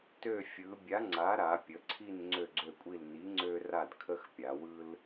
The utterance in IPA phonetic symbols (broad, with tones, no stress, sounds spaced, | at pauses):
t ø˦˨ fʲ ɯ˩˧ bʲ a˨˥ ŋ͡ǀ a˨˥ ɾ a˩˧ pʲ ə˩˧ ǀʰ i˦˨ n ŋ͡ǀ ø˦˨ ɡ͡ǀ ø˦˨ kʷʼ i˦˨ l n i˨˥ ŋ͡ǀ ø˦ r a˦˨ d kʰ ə˦ x pʲ a˩˧ w ɯ˦ l